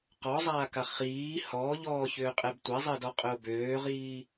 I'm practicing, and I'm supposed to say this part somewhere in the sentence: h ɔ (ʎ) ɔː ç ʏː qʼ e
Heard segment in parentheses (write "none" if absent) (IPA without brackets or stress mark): ʎ